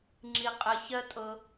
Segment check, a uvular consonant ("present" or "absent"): present